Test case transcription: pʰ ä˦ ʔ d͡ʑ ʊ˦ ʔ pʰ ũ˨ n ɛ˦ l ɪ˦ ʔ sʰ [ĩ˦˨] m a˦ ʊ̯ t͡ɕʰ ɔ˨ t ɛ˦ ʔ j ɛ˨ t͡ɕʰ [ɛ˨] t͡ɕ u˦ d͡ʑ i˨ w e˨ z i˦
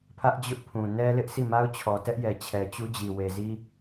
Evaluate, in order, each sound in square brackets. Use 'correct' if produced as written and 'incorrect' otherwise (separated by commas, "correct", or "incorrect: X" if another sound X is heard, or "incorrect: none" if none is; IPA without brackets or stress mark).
incorrect: i˦˨, correct